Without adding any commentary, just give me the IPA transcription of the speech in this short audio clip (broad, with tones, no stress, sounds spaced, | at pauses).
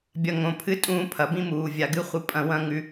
bʲ ɐ˨ ŋ õ˨ pʰ ɨ˦ tʼ ũː˧ pʰ ɐ˨ b ĩ˦ m uː˨ vʲ a˨ ɡ ɨ˦ χʷ ɨ˧ pʼ ɐ̃˧ w ɐ̃˦ ŋ ʉ˦